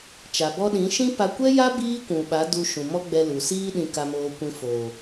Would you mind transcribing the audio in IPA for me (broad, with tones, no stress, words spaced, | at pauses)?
t͡ʃa˨bɔ˦ ɗĩ˨˦ʃĩ˦ pa˧ kʷɛ˦ja˦ biː˦kʷũ˨ɓa˨˦ du˧ʃũ˨ mɔ˦ɡ͡bɛ˧lu˨siː˦ ɗĩ˨ka˨moː˨kʷĩ˨ foː˨